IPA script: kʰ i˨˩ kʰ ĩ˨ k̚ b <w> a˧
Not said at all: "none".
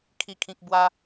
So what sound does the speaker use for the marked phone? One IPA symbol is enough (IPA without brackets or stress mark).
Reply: w